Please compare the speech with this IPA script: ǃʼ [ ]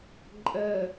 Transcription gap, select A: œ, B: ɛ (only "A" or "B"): B